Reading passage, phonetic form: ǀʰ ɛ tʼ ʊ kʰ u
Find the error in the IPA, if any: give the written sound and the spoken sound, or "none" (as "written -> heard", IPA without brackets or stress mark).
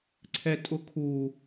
none